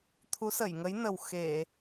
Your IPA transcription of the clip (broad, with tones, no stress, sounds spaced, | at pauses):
t̪ʰ u˨˦ s ə˧˩ j ŋ ə˨˦ j n ə˨˩ w x e˧˩˨